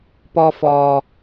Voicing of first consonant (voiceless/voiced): voiceless